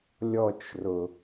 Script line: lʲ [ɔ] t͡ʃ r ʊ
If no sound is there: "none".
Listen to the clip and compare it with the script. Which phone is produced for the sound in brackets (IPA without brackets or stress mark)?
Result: ɔ